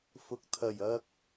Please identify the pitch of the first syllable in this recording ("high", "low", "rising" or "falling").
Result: low